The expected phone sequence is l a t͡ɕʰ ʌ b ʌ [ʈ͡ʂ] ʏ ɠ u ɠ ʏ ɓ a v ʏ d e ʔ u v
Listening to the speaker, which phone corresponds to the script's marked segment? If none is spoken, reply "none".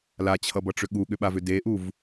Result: ʈ͡ʂ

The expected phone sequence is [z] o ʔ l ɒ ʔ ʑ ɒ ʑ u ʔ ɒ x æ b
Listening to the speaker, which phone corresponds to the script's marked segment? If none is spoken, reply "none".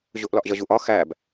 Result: ʑ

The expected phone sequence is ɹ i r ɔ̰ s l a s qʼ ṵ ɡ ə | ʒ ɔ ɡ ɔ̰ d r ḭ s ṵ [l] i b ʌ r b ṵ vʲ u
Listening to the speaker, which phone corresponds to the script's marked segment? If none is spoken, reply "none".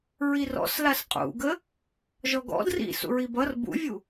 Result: ɹ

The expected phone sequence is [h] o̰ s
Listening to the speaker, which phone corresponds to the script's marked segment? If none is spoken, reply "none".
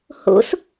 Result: h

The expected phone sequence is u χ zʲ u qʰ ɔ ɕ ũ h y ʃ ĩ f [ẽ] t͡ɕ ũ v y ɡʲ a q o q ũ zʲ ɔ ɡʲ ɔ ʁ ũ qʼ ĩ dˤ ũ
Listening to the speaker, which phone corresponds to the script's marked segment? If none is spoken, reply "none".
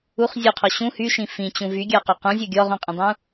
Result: ĩ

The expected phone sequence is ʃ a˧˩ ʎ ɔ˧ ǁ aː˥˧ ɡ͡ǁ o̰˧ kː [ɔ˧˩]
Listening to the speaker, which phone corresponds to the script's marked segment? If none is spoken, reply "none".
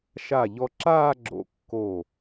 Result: o˧˩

